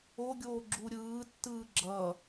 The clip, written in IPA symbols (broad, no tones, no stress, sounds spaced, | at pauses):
o ɡʲ oː ɡ͡ǁ u ɾʲ ɯː tː ɯː ɡ͡ǁ ʌ